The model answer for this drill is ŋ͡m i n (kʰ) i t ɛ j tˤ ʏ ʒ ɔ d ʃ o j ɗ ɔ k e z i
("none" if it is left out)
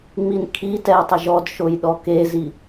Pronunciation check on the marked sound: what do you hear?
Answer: kʰ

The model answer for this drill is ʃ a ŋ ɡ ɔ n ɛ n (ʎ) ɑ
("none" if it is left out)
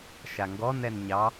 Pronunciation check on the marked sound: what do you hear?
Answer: ɲ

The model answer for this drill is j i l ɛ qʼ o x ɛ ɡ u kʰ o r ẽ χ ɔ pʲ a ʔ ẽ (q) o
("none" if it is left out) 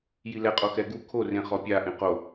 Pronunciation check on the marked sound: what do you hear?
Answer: q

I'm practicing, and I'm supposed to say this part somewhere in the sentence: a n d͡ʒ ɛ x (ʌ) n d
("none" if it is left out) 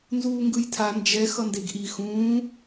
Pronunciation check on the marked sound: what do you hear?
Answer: ʌ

